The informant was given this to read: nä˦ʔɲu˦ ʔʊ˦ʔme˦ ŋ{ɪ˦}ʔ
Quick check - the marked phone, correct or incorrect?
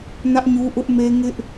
correct